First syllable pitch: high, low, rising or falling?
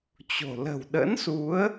low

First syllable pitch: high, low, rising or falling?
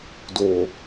low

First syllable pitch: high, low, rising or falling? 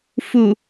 low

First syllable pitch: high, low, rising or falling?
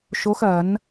rising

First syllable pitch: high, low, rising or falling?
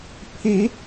rising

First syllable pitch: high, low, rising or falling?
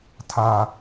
high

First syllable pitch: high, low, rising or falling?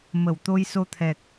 low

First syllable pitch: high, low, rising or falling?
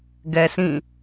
low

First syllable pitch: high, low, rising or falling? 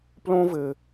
high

